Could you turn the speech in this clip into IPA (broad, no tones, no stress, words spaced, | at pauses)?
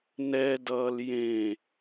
nɛdʌːl jẽ